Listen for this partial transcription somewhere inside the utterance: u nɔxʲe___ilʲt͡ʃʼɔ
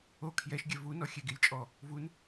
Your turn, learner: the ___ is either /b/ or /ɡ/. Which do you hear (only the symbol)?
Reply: ɡ